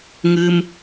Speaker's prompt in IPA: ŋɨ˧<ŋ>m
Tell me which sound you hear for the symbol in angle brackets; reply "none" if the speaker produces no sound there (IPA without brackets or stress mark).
none